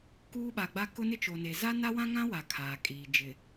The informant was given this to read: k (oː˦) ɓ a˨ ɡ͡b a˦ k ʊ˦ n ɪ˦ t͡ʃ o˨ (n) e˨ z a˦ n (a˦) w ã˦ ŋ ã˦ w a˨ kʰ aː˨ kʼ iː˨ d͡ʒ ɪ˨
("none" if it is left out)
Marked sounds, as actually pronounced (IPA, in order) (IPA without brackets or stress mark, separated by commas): uː˦, n, a˦